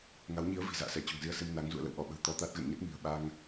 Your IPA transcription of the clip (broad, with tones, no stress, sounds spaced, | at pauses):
ŋ a˨˦ w ɲ i˨˦ ə̯ v i̤˨˩ z a̰ː˧˨ s ɛ˧˩ t͡ɕ o̤˨˩ ŋ z i˧ ə̯ s e˧ m n a˨˦ ŋ z ṵ˧˨ ə̯ l ə̰˧˨ w ʔ ɔ˧˩ ɓ ə̤˨˩ w t̪ ɔ˧ t̪ a˦˥ t̚ ɣ ə̰˧˨ n ɲ ə˦˥ t̚ m i̤˨˩ ə̯ ɓ a˧ ŋ